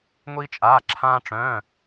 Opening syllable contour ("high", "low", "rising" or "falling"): high